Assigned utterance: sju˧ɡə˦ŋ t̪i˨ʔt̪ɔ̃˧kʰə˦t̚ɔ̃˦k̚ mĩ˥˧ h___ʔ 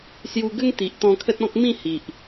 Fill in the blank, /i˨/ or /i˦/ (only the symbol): i˨